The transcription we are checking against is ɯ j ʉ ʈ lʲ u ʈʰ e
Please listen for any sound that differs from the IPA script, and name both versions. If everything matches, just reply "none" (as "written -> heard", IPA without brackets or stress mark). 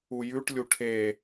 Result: ɯ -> u